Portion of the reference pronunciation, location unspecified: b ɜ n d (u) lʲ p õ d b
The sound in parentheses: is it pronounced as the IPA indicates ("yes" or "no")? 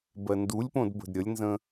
yes